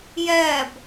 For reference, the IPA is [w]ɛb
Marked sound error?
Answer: yes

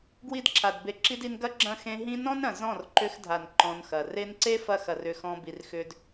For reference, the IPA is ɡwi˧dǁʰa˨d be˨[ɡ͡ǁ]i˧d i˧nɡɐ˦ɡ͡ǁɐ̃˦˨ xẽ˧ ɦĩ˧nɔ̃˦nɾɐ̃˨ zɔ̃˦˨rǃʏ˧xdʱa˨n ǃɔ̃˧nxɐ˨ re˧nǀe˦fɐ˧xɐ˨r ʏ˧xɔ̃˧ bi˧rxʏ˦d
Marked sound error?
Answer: yes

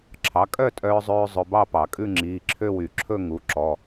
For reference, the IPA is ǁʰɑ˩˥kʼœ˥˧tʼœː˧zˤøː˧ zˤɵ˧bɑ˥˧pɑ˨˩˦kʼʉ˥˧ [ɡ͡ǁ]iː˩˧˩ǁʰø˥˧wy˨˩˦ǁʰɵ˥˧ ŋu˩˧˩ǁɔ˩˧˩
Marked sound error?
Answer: yes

